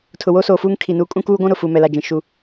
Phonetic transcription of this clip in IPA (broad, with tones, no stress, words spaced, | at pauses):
tʰʊ˨woː˦soː˨fuː˦ŋ kʰi˨nuː˦ kʼũ˦kuː˦ɡʷũ˦ ɾʊ˨fu˨ mɛ˨la˨d͡ʒĩ˨ ʃu˨